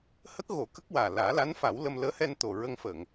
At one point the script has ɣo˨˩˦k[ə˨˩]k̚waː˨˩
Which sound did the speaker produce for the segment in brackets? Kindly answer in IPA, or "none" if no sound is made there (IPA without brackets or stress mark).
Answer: ə˦˥